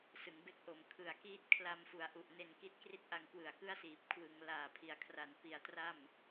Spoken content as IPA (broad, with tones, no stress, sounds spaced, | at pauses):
s ɯ˩˦ ŋ b e˥˩ k̚ ʔ o˨˩ m kʰ ɯ˨˩ a̯ k iː˥˩ t̚ kʰ l a˧ m f u˩˦ a̯ ʔ u˨˩ ʔ n e˧ n k i˦˥ t̚ k r i˥˩ t̚ ʔ a˧ ŋ k w ɯ˨˩ a̯ k ɯ˥˩ a̯ s iː˨˩ p̚ kʰ w ɯ˩˦ ŋ l aː˨˩ pʰ i˨˩ a̯ kʰ r a˨˩ n p i˩˦ a̯ t r a˥˩ m